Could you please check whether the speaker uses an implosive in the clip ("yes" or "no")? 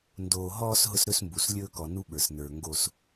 yes